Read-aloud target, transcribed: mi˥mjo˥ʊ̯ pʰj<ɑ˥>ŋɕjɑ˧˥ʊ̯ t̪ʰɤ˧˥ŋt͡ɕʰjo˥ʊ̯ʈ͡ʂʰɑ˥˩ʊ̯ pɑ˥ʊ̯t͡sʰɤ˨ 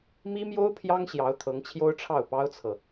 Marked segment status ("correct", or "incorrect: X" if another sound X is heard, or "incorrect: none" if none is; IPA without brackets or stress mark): correct